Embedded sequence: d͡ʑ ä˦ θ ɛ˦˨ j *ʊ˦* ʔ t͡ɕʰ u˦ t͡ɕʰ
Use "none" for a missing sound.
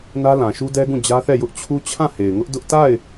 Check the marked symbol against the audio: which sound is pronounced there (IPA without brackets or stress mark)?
ʊ˦